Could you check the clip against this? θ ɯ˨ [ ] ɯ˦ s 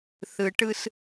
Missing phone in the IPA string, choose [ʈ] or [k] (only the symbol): ʈ